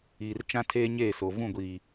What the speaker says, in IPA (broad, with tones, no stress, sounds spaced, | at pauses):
iː˨ r t͡ʃ ã˦ tʰ eː˦ ɲ eː˦˨ s o˨ v ũ˦˨ ɡʷ iː˨